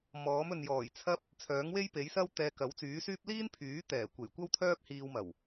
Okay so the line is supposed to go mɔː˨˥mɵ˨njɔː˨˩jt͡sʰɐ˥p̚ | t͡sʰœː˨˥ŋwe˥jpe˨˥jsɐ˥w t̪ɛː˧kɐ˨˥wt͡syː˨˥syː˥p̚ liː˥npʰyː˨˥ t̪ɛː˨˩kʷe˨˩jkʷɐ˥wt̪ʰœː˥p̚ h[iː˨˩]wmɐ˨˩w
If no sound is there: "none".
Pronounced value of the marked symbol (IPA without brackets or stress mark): iː˧